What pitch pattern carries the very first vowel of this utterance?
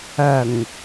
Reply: low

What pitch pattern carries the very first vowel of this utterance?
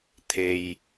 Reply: low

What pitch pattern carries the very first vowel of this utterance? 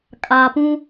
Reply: low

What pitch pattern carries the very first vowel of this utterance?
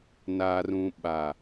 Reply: low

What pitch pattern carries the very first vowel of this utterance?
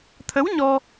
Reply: rising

